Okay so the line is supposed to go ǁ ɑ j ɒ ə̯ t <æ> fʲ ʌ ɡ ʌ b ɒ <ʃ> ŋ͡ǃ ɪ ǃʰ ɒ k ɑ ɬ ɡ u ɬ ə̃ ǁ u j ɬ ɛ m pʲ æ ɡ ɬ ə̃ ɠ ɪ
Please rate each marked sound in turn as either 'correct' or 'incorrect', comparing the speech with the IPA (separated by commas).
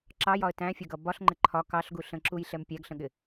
incorrect, incorrect